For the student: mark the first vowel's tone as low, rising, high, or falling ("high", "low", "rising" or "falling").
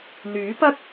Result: rising